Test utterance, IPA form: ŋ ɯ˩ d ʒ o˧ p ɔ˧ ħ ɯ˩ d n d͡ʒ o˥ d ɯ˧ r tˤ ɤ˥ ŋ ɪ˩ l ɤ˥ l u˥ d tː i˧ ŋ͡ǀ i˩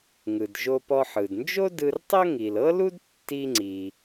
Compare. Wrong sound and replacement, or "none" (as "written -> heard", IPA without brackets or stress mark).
ɪ˩ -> i˩